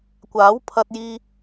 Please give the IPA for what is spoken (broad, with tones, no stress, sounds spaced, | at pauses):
kʷ aː˨˥ w pʰ ɐ˧ t̚ j iː˧